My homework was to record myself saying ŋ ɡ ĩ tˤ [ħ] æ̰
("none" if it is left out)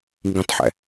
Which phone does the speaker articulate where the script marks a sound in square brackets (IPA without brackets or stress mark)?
ħ